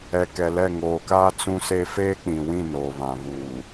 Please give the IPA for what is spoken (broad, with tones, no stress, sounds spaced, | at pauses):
ɛ˨ k ɛ˨ l ɛ˦˨ ŋ oː˨ k aː˦ t͡s ũ˦ s e˦ f eː˦ k͡p ĩ˨ w ĩ˦˨ n oː˨ β ã˨ β uː˨